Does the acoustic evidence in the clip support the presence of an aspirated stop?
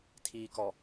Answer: yes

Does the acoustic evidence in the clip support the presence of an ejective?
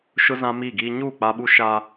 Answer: no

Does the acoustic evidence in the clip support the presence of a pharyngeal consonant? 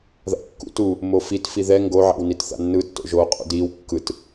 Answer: yes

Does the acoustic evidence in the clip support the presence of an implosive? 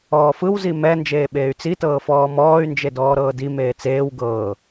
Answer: yes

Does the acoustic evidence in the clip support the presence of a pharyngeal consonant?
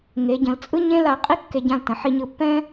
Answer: yes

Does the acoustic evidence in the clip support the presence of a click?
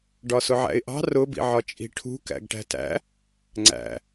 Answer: yes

